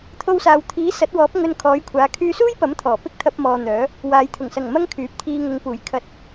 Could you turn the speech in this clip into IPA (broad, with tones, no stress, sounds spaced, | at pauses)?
t̪ʰ o˧ w s aː˨ w t̪ʰ iː˨˥ s ɐ˨˥ t̚ w ɔː˨˥ p̚ ŋ ɵ˧ n kʰ ɔː˨˥ j kʷʰ aː˨˥ kʰ yː˧ s uː˥ j p ɐ˨˥ m t̪ʰ ɔː˨˩ p ɪ˥ k̚ t̪ʰ ɐ˧ p̚ m ɔː˨ n̪ œː˨˥ | w aː˨ j t̪ʰ ʊ˨˩ ŋ s ɐ˨˩ ŋ m ɐ˥ ŋ kʰ yː˨˥ p̚ t̪ʰ iː˧ ŋ ʊ˨˧ ŋ p uː˨˩ j kʰ ɐ˧ t̚